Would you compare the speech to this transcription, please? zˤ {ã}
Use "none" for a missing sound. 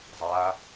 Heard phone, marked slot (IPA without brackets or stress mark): a